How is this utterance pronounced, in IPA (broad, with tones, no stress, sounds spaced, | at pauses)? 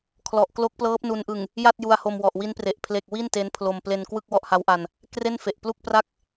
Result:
kʰ l ɔ˨˩ ʔ k l o˦˥ k̚ p l ɤː˦˥ p̚ n u˧ n ʔ ɯ˨˩ ŋ | j a˥˩ t̚ j u˧ a̯ h o˧ m w ɔ˨˩ ʔ w i˦˥ n p r e˨˩ ʔ pʰ l e˨˩ k̚ w i˥˩ n t e˦˥ n pʰ l o˧ m p l e˧ n k w ɯ˥˩ k̚ w ɔ˥˩ ʔ h a˦˥ w ʔ a˧ n | k r e˥˩ n f e˨˩ ʔ p l u˥˩ k̚ p r a˥˩ k̚